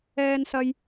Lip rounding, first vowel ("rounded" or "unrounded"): unrounded